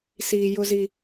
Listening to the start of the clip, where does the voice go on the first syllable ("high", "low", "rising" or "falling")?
low